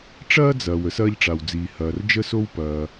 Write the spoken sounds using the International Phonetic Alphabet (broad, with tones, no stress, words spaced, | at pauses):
ʈ͡ʂɐː˥d͡zɐː˩w ə˥sɐː˥ʎʈ͡ʂa˩wd͡ziː˩ hɐː˨r d͡ʒə˥so˥wpɐː˨